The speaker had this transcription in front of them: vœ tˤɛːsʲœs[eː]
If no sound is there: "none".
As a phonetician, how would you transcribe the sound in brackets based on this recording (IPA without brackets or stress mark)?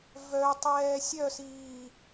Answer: iː